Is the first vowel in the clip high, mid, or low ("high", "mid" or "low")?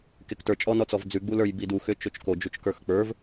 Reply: mid